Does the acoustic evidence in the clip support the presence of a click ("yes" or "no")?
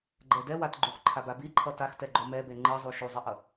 yes